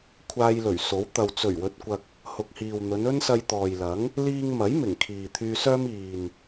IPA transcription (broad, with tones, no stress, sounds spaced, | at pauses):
kʷʰ aː˧ j l ɵ˨˩ ɥ s o˨˥ w t̪ ɐ˨ w t͡s ɵ˨˩ ɥ w ɵ˨ t̚ kʷ ɐ˨ k̚ | h ʊ˨ k̚ h iː˨ w n̪ ɵ˨˧ n ɵ˥ n s ɐ˧ j t̪ ɔː˨ j l ɐ˨˥ ŋ | l iː˧ ŋ m ɐ˨˥ j m ɪ˨˩ ŋ kʰ iː˨ t̪ʰ yː˧ s œː˥ m iː˨ n